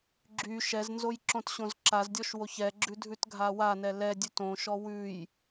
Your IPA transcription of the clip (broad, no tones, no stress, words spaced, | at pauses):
ɡ͡ǁy ʃɛznzoj ǁõtɕõzǁazdʲɔʃ woçɛɡ͡ǁʉ dʱʉtɡʱawanɛ lɛ dʲʉtõʃɔ wʉj